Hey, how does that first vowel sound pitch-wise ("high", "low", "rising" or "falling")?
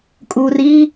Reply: low